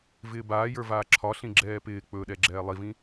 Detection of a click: present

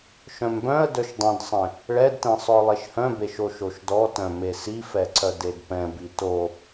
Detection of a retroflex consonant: present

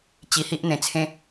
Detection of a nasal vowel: present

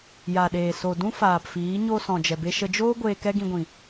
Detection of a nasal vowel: present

